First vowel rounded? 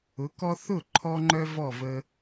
yes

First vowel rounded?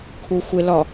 yes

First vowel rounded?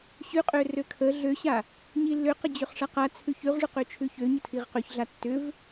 yes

